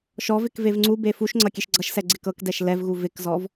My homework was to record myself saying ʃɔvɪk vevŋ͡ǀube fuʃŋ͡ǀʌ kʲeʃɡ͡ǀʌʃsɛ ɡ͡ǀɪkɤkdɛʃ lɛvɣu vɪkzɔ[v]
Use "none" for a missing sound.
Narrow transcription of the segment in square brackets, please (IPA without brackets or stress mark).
v